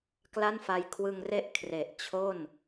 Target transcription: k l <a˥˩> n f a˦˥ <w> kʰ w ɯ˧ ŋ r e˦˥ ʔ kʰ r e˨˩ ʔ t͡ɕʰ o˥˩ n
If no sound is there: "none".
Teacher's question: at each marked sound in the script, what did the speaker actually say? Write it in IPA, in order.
a˥˩, j

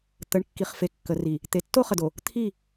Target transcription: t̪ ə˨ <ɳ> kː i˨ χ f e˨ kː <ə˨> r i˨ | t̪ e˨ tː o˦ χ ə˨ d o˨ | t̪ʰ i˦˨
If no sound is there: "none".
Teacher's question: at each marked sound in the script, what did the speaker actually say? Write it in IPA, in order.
ɳ, ə˨

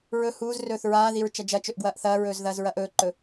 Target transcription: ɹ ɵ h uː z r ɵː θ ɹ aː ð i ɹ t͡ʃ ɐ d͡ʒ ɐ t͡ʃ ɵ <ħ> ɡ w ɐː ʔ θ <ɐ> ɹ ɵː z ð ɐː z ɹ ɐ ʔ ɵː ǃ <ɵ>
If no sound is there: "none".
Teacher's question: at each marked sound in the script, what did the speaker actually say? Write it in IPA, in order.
ʔ, ɐː, ɵ

